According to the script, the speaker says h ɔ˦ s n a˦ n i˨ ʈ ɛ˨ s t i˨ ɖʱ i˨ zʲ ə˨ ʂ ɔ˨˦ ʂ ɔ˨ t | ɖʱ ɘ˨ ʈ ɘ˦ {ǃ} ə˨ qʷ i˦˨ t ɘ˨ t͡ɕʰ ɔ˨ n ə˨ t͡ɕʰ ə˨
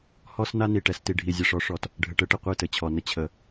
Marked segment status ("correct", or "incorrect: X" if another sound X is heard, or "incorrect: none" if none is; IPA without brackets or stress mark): incorrect: ʈ